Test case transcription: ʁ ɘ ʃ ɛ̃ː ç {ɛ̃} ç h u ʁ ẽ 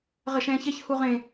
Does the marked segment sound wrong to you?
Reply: yes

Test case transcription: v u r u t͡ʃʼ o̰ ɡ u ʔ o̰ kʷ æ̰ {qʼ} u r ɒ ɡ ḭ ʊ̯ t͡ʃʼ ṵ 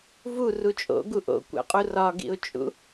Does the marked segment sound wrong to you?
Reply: no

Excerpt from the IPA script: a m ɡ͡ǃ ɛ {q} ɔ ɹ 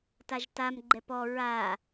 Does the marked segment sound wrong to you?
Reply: yes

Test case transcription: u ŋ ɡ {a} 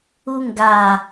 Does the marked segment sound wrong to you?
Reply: no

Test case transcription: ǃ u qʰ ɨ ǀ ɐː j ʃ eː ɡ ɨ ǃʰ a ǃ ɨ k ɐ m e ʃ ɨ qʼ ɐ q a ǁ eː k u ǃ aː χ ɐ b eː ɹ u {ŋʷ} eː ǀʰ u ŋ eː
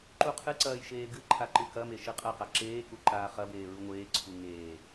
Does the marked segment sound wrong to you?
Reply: no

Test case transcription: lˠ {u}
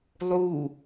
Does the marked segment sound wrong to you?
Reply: no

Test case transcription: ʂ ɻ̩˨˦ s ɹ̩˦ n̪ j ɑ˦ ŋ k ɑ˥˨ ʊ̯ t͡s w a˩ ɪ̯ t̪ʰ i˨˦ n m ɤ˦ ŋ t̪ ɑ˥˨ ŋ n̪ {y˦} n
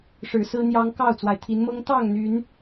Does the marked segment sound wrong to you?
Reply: yes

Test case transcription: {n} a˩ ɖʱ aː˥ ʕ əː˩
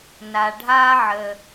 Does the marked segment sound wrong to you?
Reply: no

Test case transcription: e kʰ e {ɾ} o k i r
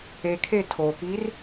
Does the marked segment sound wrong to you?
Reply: yes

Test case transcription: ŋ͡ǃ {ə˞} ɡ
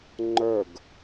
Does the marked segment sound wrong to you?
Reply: no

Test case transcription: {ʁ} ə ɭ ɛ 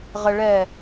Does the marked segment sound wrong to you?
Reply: no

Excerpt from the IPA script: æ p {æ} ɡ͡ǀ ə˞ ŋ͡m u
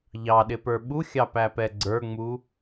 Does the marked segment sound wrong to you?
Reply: yes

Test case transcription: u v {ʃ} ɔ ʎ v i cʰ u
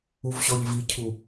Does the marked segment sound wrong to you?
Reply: yes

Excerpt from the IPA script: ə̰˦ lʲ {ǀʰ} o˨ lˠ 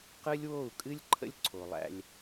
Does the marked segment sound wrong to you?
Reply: no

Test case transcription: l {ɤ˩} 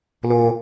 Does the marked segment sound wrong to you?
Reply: yes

